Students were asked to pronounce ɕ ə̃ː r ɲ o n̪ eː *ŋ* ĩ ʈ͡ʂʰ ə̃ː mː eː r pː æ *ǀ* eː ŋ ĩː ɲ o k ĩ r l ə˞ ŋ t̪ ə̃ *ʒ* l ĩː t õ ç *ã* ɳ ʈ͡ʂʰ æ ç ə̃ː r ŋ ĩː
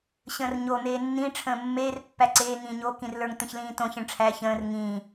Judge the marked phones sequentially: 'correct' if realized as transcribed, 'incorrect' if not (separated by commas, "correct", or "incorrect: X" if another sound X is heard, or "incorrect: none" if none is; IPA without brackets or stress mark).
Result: incorrect: nː, correct, incorrect: ç, incorrect: ə̃